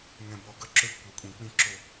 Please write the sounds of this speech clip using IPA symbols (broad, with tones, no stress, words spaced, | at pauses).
ŋɛ̃˦bɔ˦ ɡɐ˦ ǁø˦ɡ kʷɛ˦kʷʼĩ˦ k͡pĩ˦ǁo˦